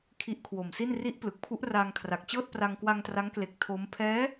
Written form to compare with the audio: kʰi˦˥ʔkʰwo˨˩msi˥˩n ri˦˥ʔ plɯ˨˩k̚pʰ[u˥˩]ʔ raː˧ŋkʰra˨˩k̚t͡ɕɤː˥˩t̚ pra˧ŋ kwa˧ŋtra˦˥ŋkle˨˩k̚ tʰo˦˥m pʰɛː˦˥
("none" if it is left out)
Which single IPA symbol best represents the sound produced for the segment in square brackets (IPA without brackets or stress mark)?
u˦˥